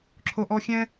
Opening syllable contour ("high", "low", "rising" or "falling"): high